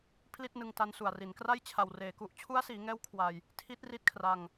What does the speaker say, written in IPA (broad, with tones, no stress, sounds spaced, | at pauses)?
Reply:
pʰ l i˥˩ t̚ n ɯ˧ ŋ t a˧ n s u˨˩ a̯ r i˩˦ n k r a˥˩ j t͡ɕʰ a˨˩ w r eː˩˦ k u˨˩ ʔ t͡ɕʰ u˦˥ a̯ s iː˩˦ ŋ ɛː˦˥ w kʰ w a˧ j | tʰ i˦˥ t̚ r i˦˥ t̚ kʰ r a˧ ŋ